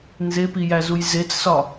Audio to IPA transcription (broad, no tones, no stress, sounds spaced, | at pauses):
n z e p i j æ z u j z e t͡s s ɒ